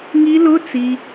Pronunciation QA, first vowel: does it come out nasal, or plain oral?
oral